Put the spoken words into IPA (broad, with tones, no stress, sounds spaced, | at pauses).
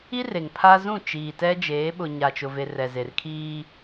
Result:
i˦ r e˨ ŋ pʰ a˦ z ũ˦˨ t͡ʃ iː˨ t ɛ˦ d͡ʒ eː˨˦ ɓ ʊ˨ ɲ a˨ t͡ʃ ʊ˨ v e˨ r ɛ˨ z e˨ r kʰ iː˦